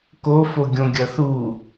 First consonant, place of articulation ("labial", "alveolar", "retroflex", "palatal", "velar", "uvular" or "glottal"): velar